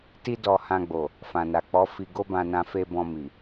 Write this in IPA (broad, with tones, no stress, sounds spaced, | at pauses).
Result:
t i˦ d ɔ˧ h ã˧ ɡ͡b o˨ | f ã˨ n a˨ k͡p ɔ˨˦ f i˧ ɡ o˦ b ã˧ n ã˧ f e˧ b ɔ̃˧ m i˨